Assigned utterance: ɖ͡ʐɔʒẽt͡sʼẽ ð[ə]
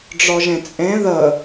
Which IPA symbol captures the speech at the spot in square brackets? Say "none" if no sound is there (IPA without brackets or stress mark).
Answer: ə